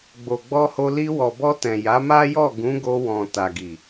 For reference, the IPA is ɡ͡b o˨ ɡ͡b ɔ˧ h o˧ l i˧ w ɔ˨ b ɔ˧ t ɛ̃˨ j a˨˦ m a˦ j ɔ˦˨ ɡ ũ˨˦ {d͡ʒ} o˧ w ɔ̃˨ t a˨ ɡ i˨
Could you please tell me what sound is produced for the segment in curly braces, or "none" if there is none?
ɡ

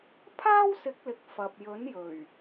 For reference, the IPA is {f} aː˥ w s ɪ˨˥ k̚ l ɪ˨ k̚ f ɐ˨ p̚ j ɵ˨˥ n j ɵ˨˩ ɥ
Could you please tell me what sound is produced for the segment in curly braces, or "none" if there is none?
pʰ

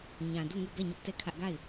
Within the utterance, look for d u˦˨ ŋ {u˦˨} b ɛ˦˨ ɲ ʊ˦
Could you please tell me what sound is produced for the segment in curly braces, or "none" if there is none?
u˦˨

